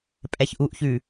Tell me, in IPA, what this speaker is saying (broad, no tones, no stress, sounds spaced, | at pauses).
pʼ ɛ ç ʔ u ʔ ç ʉ